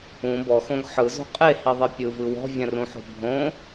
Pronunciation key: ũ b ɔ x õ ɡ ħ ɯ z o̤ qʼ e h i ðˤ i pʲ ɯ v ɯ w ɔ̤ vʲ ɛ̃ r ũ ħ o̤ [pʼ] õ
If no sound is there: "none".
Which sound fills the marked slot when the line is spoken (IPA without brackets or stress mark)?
bʱ